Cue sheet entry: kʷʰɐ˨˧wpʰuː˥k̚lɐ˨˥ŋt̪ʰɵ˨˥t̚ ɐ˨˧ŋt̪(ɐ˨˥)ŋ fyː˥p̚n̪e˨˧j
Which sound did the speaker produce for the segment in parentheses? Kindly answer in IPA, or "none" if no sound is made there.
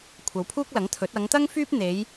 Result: ɐ˥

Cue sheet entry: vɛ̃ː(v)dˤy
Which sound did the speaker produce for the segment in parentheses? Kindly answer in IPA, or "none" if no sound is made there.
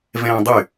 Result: none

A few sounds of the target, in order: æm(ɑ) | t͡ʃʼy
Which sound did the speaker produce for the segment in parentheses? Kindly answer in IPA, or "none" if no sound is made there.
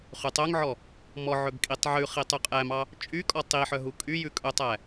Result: ɑ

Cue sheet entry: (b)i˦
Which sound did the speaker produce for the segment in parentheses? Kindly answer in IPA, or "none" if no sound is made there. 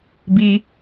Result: b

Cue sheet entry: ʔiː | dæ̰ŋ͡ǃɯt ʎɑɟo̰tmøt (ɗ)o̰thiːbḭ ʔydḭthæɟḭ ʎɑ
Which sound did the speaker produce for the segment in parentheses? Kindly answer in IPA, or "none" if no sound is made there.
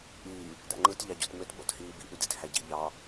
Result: ɓ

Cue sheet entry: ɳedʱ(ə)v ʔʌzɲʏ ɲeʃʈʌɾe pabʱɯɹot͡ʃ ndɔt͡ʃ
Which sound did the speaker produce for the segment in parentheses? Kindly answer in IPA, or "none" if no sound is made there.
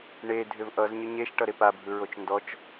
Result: ʏ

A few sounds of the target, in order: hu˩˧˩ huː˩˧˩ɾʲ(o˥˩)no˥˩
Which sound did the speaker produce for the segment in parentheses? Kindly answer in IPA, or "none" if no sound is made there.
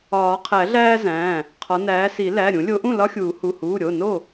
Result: o˩˧˩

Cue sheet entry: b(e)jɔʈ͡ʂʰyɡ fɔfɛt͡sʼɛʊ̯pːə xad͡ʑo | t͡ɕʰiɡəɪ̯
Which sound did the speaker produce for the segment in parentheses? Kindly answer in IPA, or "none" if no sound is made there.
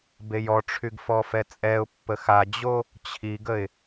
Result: e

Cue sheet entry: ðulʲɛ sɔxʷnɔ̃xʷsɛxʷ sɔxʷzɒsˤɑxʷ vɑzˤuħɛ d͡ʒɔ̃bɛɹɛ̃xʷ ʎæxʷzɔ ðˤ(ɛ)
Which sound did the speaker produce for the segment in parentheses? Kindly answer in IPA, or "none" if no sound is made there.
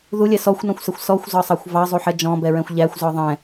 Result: ɛ̃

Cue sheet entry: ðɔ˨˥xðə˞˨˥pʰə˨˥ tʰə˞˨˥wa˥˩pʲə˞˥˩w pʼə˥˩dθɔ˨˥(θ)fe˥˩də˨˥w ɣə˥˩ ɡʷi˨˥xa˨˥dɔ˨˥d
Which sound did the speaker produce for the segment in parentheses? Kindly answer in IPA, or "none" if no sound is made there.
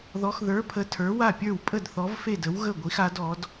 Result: v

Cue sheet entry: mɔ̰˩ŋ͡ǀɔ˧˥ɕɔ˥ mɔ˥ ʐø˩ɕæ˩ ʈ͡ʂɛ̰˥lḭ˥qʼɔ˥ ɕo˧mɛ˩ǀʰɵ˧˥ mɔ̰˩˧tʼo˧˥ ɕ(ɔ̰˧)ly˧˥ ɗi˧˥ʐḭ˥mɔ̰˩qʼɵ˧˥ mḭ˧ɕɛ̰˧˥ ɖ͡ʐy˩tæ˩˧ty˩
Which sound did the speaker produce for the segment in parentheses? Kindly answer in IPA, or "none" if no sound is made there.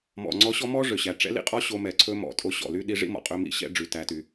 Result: ɔ̰˩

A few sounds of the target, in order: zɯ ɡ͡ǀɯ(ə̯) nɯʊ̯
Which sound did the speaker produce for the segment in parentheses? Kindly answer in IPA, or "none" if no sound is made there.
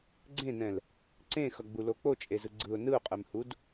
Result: ʊ̯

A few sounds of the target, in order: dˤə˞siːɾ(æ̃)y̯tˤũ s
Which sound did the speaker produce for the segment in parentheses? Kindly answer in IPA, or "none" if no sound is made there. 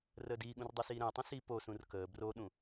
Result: ɛ̃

